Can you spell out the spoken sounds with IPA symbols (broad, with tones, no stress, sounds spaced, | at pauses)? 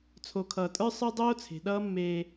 t͡sʰ o˨ kʰ ʌː˨ tʼ ə˞˦ sˤ ə˞˦ dˤ oː˦ t͡sʰ e̤˨ ɗ ʌː˦ mː eː˧